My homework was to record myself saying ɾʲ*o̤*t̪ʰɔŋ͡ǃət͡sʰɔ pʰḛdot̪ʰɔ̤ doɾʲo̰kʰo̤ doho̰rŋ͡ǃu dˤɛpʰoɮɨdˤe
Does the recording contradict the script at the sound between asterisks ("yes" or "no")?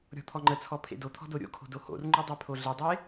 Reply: yes